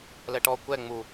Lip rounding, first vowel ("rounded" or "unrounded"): unrounded